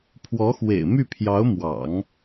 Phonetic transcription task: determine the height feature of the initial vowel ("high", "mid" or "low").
mid